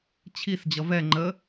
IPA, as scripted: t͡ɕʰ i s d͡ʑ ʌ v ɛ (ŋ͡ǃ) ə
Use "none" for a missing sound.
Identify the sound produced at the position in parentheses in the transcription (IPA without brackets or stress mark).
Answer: ŋ͡ǃ